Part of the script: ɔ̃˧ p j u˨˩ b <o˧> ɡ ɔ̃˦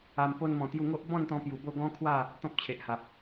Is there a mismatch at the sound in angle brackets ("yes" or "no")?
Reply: yes